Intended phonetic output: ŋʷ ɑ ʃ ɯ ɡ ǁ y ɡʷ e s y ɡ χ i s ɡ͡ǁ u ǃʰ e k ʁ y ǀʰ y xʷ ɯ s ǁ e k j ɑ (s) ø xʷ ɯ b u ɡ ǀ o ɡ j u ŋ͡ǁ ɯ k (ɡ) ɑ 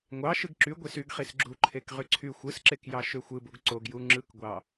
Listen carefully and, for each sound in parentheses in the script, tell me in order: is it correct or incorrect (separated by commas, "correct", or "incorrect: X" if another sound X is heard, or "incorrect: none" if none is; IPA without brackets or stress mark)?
incorrect: ʃ, incorrect: ɡʷ